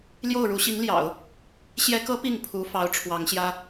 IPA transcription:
l j o˥˩ ʊ̯ ɻ u˧˥ ɕ i˧˥ ŋ l j ɑ̰˨˩˦ ʊ̯ | ɕ j ɛ˧˥ k ɤ˧˥ p i˥˩ ŋ pʰ u˧˥ f ɑ˧˥ ʊ̯ ʈ͡ʂʰ w ɑ˧˥ ŋ ɕ j ä˥

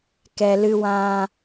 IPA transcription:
k ɛ˨ l ɨ˧ w ã˧

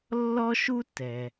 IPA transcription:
lː ɔ˥ ʃ u˥ t ɛ˩

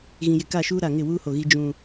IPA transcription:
ɣ ĩ˨ j ɪ˨ k a˦˨ ʃ uː˦ ɾ a˨ ŋ ɪ˦˨ w uː˦ h o˨ ɣ i˦ d͡ʒ ũ˦

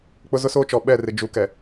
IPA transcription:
k͡p ʊ˦ z ʊ˦ s oː˦ t͡ʃ ɔ˨ ɓ ɛ˦˨ r ɪ˨ d͡ʒ u˨ k ɛ˨

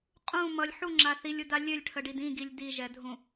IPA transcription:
qʼ ũ m ʌ lʲ ħ u ŋ͡ǁ a θ i lʲ u d a lʲ ø lʲ ʈʰ ə ɖ i d ĩ ɡ i lʲ d i ʒ ɛ dʱ ũ

